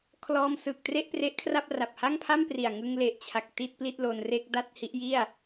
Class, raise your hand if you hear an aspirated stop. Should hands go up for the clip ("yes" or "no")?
yes